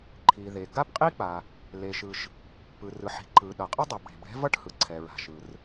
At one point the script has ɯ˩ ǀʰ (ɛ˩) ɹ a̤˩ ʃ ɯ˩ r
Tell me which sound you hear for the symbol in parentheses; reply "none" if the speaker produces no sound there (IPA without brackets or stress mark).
ɛ˩